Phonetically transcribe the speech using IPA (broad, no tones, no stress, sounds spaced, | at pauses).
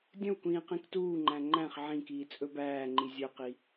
dʲ ə̃ w kʷ ĩː q ĩ k t uː ŋ͡ǃ æ̃ ŋ͡ǃ æ̃ χ ʕ ĩ k iː t͡sʼ ɵ b æː ŋ͡ǃ i zʲ ɵ q i